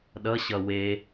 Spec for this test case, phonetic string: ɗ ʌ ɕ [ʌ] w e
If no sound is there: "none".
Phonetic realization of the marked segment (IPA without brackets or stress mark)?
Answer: ʌ